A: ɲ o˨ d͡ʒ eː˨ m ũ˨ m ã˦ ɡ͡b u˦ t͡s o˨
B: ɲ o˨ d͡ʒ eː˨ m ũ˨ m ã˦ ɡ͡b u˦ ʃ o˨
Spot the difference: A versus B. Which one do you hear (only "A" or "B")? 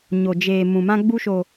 B